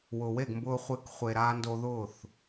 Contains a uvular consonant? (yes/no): yes